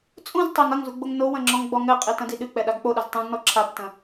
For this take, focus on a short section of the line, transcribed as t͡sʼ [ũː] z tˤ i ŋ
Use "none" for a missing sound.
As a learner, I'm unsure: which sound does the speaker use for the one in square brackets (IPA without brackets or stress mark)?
ũ